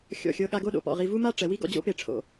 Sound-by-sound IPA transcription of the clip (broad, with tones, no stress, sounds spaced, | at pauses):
xʲ ɔ̰˧˩ xʲ ɤ˧ ɠ a˧ ɡ o˥˧ ɗ o̰˧ p ɔ̰˧˩ ʁ i˧ v u˥ m a˥ ʈ͡ʂ ɛ˩˧ w i˥ ɡ ɔ̰˧ d͡ʑ o̰˥ p e˧˩ ʈ͡ʂʰ o̰˧˩